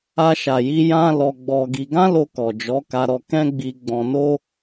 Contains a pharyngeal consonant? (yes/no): no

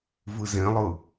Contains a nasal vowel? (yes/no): yes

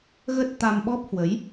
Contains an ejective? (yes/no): no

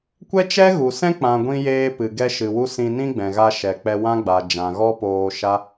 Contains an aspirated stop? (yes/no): no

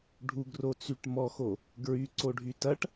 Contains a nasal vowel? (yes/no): no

